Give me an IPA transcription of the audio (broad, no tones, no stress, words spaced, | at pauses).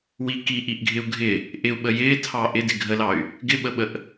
wi kiʔiʔɡʱɪu̯ ɡʱɪ | ʔɪu̯ɓə jɪːtʰɑ ʔɪdɪ ɡʱəlɑy̯ | ɡɪɓəɓəʔ